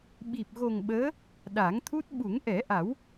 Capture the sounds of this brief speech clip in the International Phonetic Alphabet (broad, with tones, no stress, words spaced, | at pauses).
ɓi˨˩p̚ɣo˨˩ŋ ɓəː˧˥ | ɗa˨˩˦ŋt̪ʰu˦˥t̚ ɓu˨˩˦ŋʔɛ˨˩˦ʔa˨˩˦w